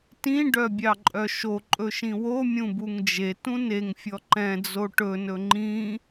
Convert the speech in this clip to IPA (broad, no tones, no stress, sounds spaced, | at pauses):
t ĩ ɖ œ bʲ ɑ ǃʼ œ ʃ o ǃʼ ɵ ʃ ĩ w o mʲ ũ b u ŋ d͡ʒ e t ũ n e ŋ fʲ ɔ ǃ ɛ̃ d͡z o ʈ ɵ n ɵ ŋ͡ǃ ĩ